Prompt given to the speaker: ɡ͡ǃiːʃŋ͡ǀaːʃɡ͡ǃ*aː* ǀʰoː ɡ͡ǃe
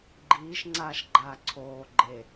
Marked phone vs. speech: correct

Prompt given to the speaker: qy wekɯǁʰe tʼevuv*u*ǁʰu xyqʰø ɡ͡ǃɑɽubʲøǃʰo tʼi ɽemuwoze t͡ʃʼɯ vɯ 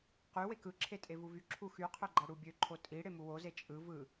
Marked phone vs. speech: incorrect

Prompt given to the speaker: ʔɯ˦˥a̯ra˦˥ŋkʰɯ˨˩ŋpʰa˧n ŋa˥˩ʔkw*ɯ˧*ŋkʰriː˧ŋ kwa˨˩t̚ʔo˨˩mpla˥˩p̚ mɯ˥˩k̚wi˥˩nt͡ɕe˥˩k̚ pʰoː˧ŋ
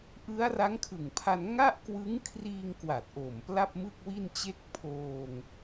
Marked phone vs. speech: incorrect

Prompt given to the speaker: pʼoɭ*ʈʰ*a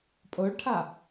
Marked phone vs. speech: correct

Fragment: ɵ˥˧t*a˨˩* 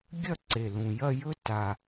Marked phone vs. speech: correct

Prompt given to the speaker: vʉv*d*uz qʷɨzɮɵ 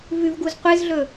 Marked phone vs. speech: incorrect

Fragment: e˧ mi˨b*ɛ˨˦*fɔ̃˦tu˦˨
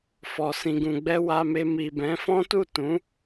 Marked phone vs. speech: incorrect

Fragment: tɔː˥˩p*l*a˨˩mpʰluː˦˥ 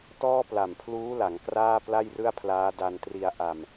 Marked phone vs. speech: correct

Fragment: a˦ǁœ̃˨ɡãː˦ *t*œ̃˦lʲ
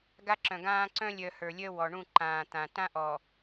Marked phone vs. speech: incorrect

